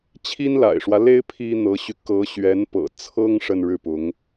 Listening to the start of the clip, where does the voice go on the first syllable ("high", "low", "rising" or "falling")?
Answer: high